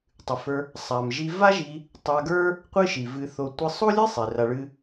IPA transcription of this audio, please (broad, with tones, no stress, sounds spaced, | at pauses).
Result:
tˤ ɨ˨ f ə˞˧ | sˤ a˨ m ʒ i˧ v a˦ ʒ i˧ | tˤ a˧ ɡ ə˞˦ | qʷ ɨ˦ ʃ i˨ v ɨ˧ θ o˧ tʷ ɨ˧ sˤ o˦ lʲ ɨ˦ sˤ i˨ r a˧ ɭ ɨ˦